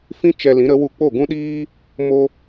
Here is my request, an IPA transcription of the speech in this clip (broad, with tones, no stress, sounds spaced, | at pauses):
f ĩ˦ t͡ʃ ɛ˧ l ĩ˨˦ ɾ ə˨˦ w u˧ k͡p o˦˨ ɡ ũ˦ ɗ iː˦ | m o˦